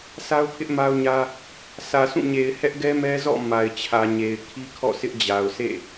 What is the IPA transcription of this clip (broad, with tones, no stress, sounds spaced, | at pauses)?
s a˦ ʊ̯ pʰ ɪ˦ ʔ m a˦ ʊ̯ ɲ ä˦ | s ä˨ sʰ ũ˦˨ ɲ e˨ ɪ̯ h ɛ˦ ʔ ɡ ɛ˦ m ɛ˦ z ɔ̰˦˨ m a˨ ɪ̯ t͡ɕʰ ä˨ ɲ e˨ ɪ̯ kʰ i˦ kʰ ɔ̰˦˨ sʰ ɪ˦ ʔ d͡ʑ a˨ ʊ̯ sʰ ḛ˦˨